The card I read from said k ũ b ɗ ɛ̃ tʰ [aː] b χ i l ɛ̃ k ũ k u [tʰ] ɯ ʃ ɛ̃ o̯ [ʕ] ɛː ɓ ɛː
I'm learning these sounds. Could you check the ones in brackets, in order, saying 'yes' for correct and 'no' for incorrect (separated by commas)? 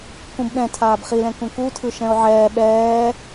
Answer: yes, yes, yes